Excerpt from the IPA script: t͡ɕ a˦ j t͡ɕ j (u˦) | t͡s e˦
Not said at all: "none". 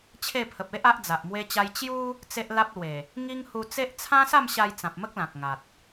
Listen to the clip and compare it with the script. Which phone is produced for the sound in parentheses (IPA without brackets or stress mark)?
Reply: u˦